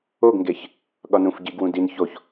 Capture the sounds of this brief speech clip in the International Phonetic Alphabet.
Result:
oɡŋɡeç | ɠɒnũf ɟiɡwũ din çoç

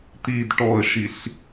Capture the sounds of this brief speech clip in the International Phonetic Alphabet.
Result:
t̪id ʈɔə̯ʃiɬ

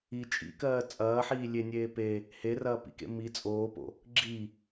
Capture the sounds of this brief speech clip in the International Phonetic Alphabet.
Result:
i t͡ʃʼḭkɜː t͡sʼɐːħiː lʲenʲeː pe | herɐːpḭkḛ mi t͡sʼoːpo̰ | ɡ͡ǁi

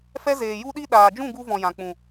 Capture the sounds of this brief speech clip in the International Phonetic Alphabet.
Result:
fɛ˦zeː˨ ju˧ɗi˧ ɗaː˨d͡ʒũ˦˨ ɡu˧vɔ̃˨ jã˨k͡pũ˨

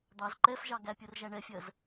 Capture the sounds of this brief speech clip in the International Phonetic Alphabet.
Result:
d̪ɑz ǃɛfʒɑ ɡæpʲʊrʒæ ɳɛfʲɜz

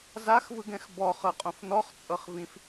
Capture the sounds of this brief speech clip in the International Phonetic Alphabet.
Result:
zaxvɯɡɛ̃x bɔχɤqʼõf nɔχt͡sʼɤχvĩf

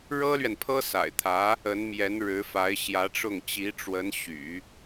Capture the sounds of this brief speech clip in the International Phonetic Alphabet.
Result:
ɻɤ˥lɥɛ˨npʰɤ˥ sa̰˨˩ɪ̯t̪ʰä˧˥ | ə˧˥nmjɛ˧˥n ɻɻ̩˧˥fa˧˥ɪ̯ɕjä˧˥ʈ͡ʂʊ˥˩ŋ t͡ɕi˧˥ʈ͡ʂwə˧˥nɕy̰˨˩˦

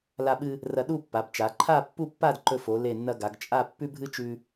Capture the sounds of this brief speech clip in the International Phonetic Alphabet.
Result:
la˧ɓɨ˧ | rɐ˧ɗu˥˧pːa˩˧bt͡ʃa˩˧ ǃʰa˥˧pːu˥˧pːa˥˧dǃɵ˧ fo˩˧le˧˩nːɐ˧ ɡa˩˧ɡt͡ʃʼa˥˧ pːʉ˥bʱɨ˥t͡ʃʉ˧

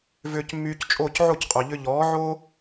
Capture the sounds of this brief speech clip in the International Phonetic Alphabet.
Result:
vʏː˧cmːyː˧ct͡ʃʼoː˥˩c ʕo˥˩cqʼœ˩ʎʏ˧ ʎɔː˩˥ ʕoː˥

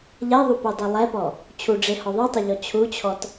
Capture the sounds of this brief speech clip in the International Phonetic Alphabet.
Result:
ʎɛðˤupodˤo lˠɛpɔ | t͡ɕʰuɖ͡ʐehɔ ðˤitˤʊʎɔ t͡ɕʰut͡ɕʰɔt

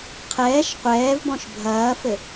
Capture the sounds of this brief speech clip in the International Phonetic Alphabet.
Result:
qʰɛːʃ qʷɛːvbɔ̃ʃ bʱɐːfɘ

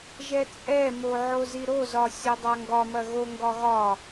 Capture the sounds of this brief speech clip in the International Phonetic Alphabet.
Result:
ʒɛt͡sʼɛmo ʕoziɾozɒ sʲodˤaŋɡɒmɐ ɣoŋɡɒ ɣɒ

